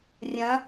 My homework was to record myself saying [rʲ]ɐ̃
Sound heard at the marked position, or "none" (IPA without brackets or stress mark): rʲ